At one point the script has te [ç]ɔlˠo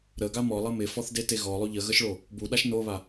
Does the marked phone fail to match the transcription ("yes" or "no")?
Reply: yes